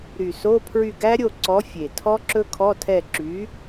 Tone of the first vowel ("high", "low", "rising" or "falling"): low